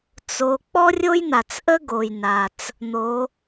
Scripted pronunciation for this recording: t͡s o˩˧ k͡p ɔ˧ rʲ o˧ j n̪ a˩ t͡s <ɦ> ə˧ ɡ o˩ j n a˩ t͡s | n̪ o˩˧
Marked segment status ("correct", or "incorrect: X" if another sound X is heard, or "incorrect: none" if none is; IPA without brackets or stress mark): incorrect: ʔ